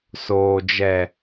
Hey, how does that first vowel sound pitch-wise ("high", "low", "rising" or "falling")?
high